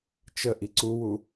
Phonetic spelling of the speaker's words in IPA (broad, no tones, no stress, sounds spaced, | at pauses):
t͡ʃ ə ʔ i ǀ u w u